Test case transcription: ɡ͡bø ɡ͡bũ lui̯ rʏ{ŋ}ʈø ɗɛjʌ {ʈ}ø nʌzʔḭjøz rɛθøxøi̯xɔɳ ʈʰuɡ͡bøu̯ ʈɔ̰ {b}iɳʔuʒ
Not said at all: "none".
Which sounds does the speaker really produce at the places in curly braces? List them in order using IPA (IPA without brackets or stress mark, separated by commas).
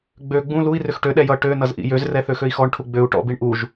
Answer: x, ʈ, b